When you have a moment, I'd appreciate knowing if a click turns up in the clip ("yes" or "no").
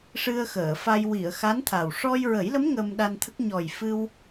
no